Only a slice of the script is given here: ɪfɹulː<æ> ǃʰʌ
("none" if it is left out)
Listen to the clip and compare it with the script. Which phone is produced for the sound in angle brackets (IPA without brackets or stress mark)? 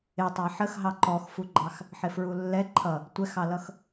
ɛ